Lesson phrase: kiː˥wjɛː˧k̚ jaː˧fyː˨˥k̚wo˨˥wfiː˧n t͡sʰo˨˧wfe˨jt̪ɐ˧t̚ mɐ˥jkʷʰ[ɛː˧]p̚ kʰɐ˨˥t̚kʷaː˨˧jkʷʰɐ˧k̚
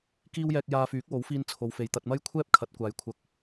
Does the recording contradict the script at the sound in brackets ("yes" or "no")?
yes